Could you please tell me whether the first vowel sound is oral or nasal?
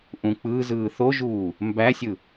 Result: nasal